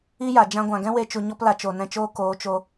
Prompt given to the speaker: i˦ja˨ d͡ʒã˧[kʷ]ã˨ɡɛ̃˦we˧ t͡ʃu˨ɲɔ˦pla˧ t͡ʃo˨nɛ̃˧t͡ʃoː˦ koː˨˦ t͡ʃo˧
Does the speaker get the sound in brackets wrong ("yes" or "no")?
yes